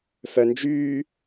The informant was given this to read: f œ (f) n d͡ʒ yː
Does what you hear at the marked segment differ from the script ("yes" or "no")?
yes